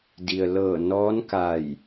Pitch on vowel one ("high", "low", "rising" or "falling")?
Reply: low